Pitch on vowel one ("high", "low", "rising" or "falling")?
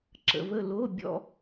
low